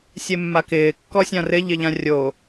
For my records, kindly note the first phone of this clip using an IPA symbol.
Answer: sʲ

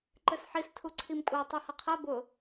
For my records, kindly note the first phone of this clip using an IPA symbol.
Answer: ǃ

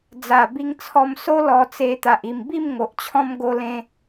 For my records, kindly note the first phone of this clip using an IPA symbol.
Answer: d͡z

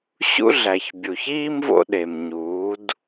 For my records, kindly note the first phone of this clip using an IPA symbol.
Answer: ɕ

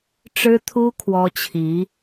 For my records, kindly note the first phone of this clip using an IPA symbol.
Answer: ʈ͡ʂ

